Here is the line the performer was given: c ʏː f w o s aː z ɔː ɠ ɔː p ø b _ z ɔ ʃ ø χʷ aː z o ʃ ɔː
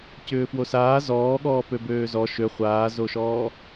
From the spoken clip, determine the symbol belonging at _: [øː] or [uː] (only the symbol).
øː